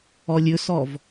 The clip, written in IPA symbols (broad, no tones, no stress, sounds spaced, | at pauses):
ɔ lʲ ɵ s ɔ v